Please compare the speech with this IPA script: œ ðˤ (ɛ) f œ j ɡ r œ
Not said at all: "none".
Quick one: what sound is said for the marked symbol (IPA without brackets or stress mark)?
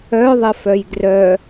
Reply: ə